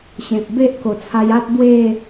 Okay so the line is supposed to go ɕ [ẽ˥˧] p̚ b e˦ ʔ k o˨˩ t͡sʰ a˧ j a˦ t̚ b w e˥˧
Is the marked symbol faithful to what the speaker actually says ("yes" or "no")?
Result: no